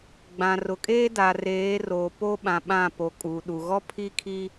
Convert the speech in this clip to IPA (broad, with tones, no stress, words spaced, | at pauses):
ɡ͡bã˨rʊ˨kʼeː˦ da˨reː˨˦ roː˨po˦ɓã˨ ɓã˦˨po˨kʼuː˨ɗu˨ ɣɔ˦pʰiː˦kʰi˦